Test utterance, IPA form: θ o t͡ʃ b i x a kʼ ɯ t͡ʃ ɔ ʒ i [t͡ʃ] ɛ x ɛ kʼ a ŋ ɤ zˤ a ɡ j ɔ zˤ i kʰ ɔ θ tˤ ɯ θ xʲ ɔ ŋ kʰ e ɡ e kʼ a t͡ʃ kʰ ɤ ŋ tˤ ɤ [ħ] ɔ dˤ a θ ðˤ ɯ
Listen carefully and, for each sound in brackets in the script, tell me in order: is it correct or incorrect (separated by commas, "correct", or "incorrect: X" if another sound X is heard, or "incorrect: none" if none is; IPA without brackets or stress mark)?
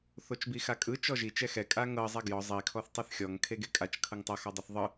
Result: correct, incorrect: x